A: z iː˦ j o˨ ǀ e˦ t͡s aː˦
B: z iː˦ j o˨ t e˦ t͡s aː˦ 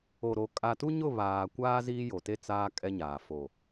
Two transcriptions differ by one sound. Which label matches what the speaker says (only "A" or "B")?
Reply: B